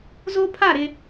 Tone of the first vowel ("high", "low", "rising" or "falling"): high